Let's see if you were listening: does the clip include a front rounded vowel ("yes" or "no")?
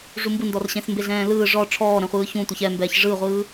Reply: no